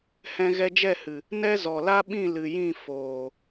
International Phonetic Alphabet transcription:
h ɛ̃˧ ɣ ɛ˧ d͡ʒ ɛ˦˨ h ɨ˨ | n ɛ˦ z ɔ˨ l a˦ ɓ ĩ˦˨ l ɨ˨ j ĩ˦˨ f oː˨

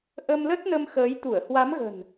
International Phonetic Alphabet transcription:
ʔ ə˧ m l ə˦˥ t̚ n ə˧ m x əː˨˦ j t̪ u˧˩ ə̯ h w a˨˦ m ɣ ə̤˨˩ n

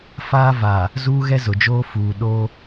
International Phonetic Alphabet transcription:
f aː˦ v a˨ | z uː˦ ɣ ɛ˦ z ʊ˨ d͡ʒ oː˦ f uː˨ ɗ oː˦

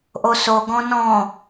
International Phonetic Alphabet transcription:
ʔ o s o ɡ ɔ̃ n ɔ̃

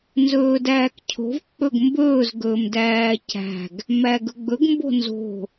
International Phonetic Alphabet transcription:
n z ɵː d æː k cʰ o̤ v k͡p ɵ ɡ m b ɵː z ɡ ɵː m d æː c æ̤ ɡ | m æ ɡ ɵ ɡ͡b ɵ ɡ m b o̤ n z o̤

